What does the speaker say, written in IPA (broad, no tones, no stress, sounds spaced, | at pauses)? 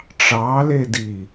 ʈ͡ʂ ɑ l e d i